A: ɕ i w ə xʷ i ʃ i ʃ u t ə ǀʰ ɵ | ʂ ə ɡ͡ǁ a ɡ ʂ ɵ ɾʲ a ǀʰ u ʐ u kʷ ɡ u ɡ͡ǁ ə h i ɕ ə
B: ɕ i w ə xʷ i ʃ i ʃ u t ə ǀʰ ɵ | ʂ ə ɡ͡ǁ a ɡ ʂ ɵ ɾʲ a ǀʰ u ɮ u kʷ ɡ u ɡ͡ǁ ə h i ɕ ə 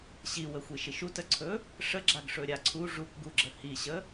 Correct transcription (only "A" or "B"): A